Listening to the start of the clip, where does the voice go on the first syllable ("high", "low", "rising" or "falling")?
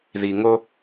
low